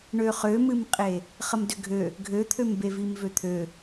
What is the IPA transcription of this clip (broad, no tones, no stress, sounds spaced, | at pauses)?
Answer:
ɳ ø χ ø m ɨ m qʼ e | χ ə m d ʏ ɡʱ ø | ɡʱ ø t̪ʰ ø m b e v i m v ø t̪ʰ ø